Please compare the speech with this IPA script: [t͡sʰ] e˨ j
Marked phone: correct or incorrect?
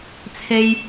correct